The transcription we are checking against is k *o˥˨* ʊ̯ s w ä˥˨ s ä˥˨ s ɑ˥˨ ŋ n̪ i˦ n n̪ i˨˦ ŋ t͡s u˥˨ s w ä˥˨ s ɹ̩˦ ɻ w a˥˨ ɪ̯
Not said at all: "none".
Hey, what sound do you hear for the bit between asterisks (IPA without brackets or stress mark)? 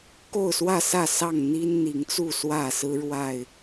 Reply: o˥˨